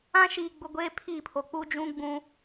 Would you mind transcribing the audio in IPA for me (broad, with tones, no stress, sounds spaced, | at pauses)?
ã˦ ʃ iː˨ ɡ͡b ʊ˨ ɡʷ eː˦ pʰ iː˦˨ pʰ o˨ k͡p u˦ d͡ʒ ũ˦ ɡ͡b ũ˦